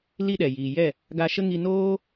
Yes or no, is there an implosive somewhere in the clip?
yes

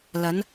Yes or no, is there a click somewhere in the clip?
no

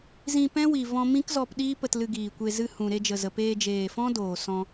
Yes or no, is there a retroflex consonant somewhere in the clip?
no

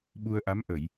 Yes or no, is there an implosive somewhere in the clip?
yes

